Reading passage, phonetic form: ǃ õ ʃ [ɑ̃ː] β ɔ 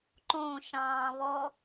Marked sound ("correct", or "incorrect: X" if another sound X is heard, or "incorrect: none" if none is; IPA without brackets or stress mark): correct